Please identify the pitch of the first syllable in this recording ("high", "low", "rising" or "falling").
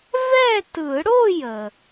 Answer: falling